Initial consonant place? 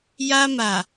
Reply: palatal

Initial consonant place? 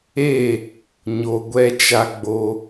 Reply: palatal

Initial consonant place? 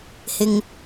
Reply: glottal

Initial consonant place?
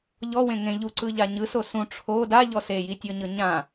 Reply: palatal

